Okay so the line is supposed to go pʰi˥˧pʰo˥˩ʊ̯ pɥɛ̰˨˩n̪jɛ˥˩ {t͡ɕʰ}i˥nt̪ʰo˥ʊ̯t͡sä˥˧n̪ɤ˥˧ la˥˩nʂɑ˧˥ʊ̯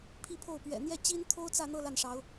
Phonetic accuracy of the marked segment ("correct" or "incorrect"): incorrect